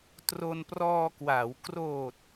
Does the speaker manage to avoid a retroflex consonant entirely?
yes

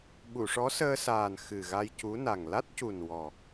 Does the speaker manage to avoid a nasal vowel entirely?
yes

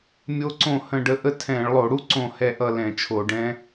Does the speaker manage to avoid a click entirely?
no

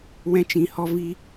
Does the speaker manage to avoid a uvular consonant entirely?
yes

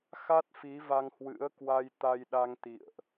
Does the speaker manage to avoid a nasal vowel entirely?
yes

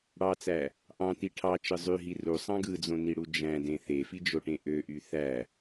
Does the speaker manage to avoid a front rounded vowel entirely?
no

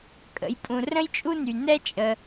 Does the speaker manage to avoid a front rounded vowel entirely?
no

